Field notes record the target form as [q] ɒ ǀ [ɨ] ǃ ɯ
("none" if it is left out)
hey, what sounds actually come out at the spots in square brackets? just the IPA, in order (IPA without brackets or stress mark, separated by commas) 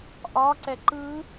ʔ, ɛ